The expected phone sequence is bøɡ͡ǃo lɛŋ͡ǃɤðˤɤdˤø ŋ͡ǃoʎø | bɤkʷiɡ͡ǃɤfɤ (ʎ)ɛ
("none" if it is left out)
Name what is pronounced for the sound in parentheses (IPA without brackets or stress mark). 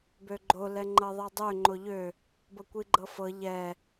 ʎ